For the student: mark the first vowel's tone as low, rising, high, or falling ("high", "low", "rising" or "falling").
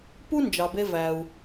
high